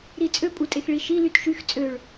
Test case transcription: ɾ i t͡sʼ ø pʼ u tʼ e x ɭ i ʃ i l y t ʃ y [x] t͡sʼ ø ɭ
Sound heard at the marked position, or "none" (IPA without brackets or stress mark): x